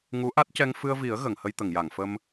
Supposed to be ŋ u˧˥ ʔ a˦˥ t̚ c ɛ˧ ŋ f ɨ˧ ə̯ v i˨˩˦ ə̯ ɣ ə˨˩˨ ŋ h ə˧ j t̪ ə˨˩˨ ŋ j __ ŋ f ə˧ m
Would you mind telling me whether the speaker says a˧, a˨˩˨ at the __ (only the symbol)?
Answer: a˨˩˨